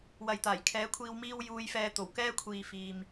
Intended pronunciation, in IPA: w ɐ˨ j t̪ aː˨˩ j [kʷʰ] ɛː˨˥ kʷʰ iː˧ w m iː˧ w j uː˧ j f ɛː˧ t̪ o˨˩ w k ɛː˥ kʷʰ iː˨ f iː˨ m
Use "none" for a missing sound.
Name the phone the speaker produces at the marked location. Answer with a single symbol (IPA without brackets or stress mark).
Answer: kʰ